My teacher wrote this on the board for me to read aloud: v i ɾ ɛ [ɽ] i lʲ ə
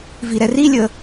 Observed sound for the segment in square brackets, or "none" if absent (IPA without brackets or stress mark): r